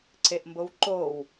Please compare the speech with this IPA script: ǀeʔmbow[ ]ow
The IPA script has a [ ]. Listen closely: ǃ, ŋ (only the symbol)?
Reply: ǃ